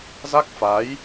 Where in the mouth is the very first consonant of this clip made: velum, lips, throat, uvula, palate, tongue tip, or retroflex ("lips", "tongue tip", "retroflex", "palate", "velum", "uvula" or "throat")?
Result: tongue tip